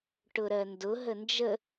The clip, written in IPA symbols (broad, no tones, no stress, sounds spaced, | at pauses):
ʈ ʊ ɾ ɜ n d ʊ ɦ ə n d͡ʒ ə